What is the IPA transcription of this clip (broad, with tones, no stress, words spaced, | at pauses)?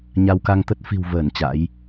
ɲa˧wka˧ŋ t̪ə˦˥t̚ fi̤˨˩wvəː˧˩n t͡ɕa̰˧˥j